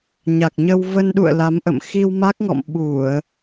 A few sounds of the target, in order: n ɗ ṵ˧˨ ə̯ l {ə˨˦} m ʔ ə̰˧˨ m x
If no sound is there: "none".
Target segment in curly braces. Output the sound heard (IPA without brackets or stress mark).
a˨˦